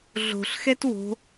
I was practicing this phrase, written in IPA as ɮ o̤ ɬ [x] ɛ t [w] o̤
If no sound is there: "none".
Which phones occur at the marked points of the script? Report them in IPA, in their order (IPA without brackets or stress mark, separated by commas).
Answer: x, w